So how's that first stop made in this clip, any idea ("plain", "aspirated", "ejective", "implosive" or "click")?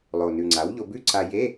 click